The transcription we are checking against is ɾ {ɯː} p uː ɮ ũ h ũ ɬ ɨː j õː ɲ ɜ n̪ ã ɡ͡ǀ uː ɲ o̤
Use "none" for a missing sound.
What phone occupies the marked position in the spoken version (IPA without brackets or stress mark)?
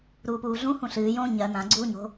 uː